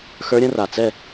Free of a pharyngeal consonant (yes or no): yes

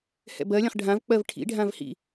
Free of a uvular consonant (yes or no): no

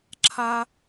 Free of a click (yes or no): no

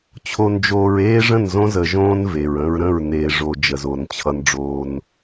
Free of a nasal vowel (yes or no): no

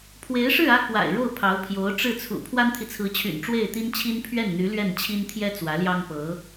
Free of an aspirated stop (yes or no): no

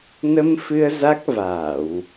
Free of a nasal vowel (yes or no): yes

